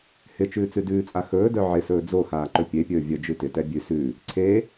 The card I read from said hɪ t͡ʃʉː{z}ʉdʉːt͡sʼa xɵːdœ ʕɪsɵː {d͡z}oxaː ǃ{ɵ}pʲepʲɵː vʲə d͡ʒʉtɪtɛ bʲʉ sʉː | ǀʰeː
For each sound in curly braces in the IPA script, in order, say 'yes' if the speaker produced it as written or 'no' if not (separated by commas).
no, yes, yes